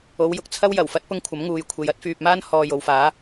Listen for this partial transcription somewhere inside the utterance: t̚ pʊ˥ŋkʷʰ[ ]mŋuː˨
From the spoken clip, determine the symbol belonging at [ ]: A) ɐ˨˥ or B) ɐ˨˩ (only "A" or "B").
A